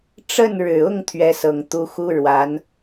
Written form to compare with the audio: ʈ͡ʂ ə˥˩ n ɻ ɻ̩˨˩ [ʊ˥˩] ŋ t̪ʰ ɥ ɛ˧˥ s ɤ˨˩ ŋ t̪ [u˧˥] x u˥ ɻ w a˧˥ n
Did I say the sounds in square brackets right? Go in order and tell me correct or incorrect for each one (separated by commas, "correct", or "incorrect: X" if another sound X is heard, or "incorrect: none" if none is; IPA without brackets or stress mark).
correct, correct